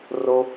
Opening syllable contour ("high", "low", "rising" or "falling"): high